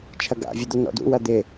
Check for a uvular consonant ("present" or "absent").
absent